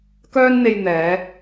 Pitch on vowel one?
high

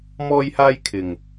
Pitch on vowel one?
high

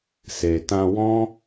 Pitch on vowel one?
low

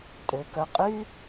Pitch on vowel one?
low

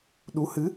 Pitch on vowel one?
rising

